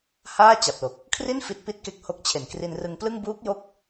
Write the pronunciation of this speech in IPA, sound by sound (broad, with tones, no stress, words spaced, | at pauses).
haː˥˩t͡ɕa˨˩p̚lo˨˩k̚ | kʰri˥˩n fi˦˥t̚pi˥˩t̚ke˦˥k̚ho˦˥k̚ t͡ɕʰe˨˩nkri˧nrɯ˧ŋplɯ˥˩ŋ buː˦˥k̚jo˦˥k̚